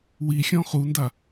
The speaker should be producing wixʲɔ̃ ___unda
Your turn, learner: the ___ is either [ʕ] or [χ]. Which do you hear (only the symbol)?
χ